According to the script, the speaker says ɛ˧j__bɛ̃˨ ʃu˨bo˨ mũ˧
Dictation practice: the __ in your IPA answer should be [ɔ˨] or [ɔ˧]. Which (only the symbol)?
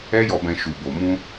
ɔ˨